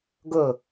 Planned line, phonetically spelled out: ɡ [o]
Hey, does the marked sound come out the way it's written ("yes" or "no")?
no